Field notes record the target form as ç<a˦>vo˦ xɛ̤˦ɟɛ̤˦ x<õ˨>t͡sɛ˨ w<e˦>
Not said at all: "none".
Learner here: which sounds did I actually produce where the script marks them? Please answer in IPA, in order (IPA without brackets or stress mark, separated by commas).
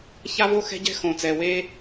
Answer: a˦, õ˨, e˦